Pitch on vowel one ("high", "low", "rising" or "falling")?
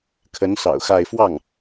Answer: rising